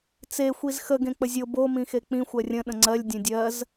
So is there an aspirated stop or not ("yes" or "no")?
no